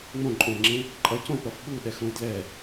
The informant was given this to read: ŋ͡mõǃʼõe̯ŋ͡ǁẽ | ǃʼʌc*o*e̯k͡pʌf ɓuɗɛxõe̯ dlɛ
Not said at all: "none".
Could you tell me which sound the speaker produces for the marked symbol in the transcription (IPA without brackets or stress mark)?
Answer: õ